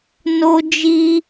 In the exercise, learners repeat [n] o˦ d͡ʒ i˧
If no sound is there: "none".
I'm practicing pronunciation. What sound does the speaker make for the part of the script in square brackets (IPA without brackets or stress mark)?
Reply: n